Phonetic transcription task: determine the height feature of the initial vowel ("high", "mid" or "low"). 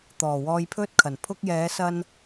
mid